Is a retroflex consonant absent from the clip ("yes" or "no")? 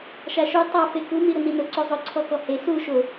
yes